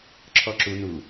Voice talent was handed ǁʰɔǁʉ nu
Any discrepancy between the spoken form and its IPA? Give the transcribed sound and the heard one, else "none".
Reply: ʉ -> u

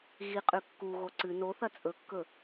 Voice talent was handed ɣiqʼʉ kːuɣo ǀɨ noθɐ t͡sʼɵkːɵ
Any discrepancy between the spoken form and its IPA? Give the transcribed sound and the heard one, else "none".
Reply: none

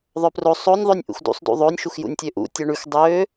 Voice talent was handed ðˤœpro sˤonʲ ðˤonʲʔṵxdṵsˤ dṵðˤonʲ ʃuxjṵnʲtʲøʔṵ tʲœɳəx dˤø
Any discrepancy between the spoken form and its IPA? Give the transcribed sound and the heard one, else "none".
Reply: ə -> ʉ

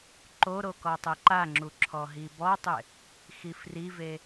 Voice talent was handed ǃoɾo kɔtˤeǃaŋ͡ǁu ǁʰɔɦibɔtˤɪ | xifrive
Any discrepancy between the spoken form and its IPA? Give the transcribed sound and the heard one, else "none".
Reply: none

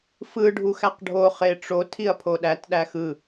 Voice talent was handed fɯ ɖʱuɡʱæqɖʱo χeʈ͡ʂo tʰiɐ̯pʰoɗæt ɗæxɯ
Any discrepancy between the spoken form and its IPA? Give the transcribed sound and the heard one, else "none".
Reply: ɡʱ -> x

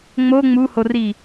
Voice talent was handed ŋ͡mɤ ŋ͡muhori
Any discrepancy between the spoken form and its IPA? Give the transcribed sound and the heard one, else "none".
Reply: ɤ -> o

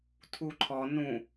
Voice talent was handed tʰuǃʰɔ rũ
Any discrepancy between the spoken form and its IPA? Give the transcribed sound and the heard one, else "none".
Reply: r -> n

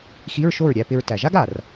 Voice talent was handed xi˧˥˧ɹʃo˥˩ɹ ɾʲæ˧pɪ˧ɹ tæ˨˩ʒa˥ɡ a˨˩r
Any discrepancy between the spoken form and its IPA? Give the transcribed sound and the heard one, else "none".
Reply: none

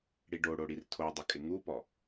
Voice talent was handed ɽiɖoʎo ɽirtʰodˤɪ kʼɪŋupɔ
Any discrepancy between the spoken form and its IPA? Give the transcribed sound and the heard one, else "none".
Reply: ʎ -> ɽ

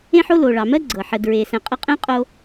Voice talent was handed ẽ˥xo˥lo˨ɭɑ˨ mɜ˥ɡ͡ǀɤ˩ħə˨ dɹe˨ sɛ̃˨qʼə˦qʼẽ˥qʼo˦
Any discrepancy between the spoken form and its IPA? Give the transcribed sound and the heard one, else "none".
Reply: x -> ħ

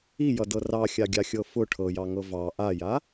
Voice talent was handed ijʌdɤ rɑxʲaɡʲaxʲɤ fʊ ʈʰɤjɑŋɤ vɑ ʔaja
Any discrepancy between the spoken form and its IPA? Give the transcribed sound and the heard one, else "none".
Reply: none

